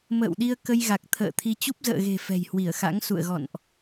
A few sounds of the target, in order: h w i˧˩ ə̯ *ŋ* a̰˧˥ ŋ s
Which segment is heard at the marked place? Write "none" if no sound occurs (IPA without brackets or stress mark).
x